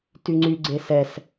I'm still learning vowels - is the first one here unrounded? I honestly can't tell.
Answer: no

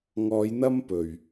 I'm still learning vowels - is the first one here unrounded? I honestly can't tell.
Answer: no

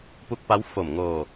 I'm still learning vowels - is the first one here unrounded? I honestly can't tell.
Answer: no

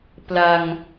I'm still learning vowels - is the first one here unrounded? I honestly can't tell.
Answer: yes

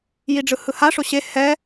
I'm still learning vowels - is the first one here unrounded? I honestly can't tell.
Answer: yes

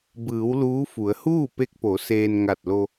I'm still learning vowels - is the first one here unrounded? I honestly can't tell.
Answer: yes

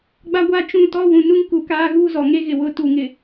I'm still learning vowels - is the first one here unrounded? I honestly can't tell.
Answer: yes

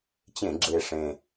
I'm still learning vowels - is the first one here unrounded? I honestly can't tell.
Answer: yes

